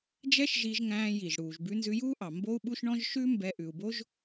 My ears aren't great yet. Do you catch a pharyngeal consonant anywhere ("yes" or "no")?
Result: no